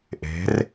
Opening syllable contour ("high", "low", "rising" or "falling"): rising